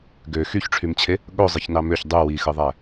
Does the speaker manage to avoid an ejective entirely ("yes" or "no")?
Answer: yes